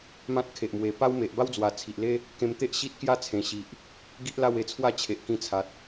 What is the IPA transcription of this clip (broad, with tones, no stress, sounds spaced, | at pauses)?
m ã˦ t̚ kʰ e˨ ʔ m w e˨˩ p a˦ w m e˨ ʔ b a˦ w d͡z w a˨˩ t͡sʰ i˨ ʔ l e˦ | k ẽ˧ m t̪ e˦ ʔ ɕ i˦ t̚ k j a˥˧ t͡sʰ ẽ˨˩ ɕ i˨ ʔ | ɡ i˦ ʔ l a˥˧ w e˧ t͡sʰ w a˥˧ t͡ɕʰ e˨ ʔ k ĩ˧ t͡sʰ a˨ t̚